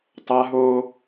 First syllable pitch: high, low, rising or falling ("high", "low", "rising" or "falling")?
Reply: high